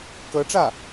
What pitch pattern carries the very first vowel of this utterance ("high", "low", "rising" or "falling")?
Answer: rising